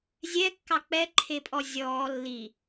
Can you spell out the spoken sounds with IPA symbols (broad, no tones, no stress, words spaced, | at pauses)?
zʲɛ kːɑk͡pɛ ǃʰepʼɔzʲɔː lːi